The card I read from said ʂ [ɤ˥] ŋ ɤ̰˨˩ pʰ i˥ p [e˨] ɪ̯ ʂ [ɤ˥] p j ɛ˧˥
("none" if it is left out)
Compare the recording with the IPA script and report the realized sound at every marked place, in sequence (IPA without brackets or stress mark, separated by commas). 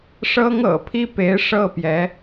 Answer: ɤ˥, e˧˥, ɤ˥˩